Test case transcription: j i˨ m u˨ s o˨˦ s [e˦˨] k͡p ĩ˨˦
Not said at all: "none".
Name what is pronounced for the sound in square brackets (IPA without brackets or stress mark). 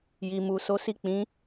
i˦˨